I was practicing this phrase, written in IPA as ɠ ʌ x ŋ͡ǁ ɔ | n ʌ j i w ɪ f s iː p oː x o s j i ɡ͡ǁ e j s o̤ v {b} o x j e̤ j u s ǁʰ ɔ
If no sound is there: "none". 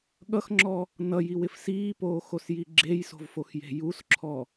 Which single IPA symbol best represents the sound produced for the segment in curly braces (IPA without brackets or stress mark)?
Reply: f